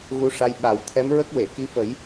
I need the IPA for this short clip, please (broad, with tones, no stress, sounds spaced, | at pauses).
ɣ u˧˥ ʂ a˧ j ɓ a˨˩ w t̪ʰ ɛ˧˥ m ɹ ə˦˥ k̚ w e˨˩˨ k i˧˥ f ə˨˩˦ j